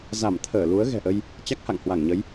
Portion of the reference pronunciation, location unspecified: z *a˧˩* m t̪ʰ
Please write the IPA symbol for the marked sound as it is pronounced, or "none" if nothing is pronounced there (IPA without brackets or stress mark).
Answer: a˧˩